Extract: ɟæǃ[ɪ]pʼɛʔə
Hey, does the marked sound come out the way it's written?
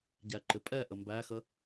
yes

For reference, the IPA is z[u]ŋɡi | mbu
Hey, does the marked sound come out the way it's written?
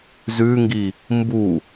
no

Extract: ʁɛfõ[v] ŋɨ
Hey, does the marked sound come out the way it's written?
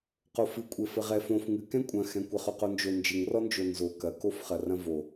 no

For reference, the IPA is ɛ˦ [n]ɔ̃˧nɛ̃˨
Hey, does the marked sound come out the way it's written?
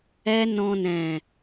yes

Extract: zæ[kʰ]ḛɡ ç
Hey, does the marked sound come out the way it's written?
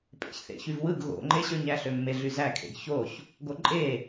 yes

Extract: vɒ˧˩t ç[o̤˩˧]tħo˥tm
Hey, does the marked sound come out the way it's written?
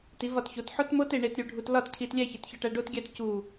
no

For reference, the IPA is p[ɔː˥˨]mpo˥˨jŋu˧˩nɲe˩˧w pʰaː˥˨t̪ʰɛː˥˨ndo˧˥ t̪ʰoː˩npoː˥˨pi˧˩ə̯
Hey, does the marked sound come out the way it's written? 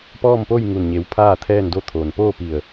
yes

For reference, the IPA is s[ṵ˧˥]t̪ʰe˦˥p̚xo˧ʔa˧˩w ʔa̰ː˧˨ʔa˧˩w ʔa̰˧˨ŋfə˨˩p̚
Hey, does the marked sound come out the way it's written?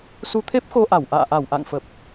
no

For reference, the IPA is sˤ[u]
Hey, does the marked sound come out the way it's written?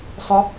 no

